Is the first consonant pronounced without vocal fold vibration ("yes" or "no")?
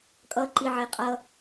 yes